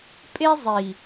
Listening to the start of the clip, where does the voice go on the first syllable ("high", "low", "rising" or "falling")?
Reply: high